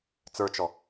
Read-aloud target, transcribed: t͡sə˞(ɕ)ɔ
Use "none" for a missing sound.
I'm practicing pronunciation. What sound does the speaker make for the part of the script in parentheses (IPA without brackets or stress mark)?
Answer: t͡ʃ